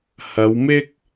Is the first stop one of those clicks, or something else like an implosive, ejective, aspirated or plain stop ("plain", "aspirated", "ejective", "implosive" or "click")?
plain